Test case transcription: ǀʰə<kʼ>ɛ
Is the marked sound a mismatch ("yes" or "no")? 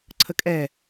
no